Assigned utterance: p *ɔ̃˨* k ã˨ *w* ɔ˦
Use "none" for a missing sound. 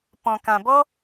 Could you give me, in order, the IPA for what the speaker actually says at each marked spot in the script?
ɔ̃˨, b

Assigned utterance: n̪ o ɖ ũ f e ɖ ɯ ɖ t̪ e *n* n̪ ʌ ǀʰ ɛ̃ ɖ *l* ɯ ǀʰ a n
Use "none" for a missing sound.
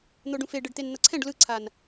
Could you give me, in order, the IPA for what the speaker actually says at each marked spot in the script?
n, l

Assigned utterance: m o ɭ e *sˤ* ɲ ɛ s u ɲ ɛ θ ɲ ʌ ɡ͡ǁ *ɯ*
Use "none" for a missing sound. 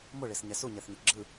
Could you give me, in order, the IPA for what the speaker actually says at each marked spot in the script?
s, ɯ

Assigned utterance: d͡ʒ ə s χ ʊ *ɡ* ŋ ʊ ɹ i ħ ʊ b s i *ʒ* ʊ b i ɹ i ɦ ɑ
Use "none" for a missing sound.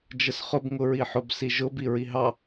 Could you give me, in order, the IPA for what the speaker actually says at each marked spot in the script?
b, ʒ

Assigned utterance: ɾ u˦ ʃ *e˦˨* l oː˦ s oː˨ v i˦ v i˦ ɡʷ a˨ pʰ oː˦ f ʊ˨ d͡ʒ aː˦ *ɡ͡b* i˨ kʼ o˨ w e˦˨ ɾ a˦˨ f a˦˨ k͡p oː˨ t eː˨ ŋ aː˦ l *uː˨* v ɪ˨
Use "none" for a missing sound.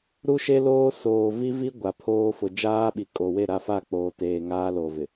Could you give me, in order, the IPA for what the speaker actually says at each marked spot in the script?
e˦, ɓ, oː˨

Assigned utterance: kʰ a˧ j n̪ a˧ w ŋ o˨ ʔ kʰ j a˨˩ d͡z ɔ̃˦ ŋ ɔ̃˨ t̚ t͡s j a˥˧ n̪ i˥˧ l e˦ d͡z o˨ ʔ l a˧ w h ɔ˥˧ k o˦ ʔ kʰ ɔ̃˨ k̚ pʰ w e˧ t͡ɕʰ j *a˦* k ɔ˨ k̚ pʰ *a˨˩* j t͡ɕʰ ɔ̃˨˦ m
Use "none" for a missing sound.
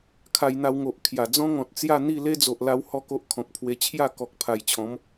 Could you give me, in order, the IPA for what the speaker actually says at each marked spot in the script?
a˥˧, a˨˩

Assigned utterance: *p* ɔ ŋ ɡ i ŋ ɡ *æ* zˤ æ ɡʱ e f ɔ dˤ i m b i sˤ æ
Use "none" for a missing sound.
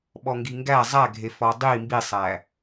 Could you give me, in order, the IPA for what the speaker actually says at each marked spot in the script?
ɓ, æ

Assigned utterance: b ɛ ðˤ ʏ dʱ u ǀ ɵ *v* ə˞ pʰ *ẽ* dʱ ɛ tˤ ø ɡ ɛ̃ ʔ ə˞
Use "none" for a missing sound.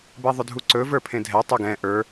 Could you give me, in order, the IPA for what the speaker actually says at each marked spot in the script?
v, ẽ

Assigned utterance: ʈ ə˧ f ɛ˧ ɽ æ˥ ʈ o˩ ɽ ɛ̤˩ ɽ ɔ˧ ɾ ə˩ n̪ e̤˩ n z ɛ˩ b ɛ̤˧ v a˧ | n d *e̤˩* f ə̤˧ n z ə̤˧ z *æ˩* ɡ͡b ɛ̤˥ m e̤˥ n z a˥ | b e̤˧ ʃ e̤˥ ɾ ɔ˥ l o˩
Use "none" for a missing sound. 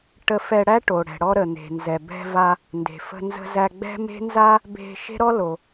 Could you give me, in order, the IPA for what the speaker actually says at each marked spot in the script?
e̤˩, æ˧

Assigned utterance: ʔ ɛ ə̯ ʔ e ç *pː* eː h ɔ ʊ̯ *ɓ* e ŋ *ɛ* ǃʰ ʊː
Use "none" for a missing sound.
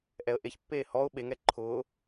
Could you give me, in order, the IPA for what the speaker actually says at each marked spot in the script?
pː, ɓ, ɛ

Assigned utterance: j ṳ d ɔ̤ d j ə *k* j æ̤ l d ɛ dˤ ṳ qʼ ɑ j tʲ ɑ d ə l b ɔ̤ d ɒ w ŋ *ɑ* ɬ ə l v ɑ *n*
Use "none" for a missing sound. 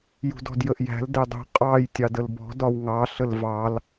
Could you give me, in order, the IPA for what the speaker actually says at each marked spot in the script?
ʔ, ɑ, l

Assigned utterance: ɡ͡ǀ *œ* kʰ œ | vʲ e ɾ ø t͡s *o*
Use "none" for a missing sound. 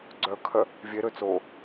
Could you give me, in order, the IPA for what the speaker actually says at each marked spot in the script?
œ, o

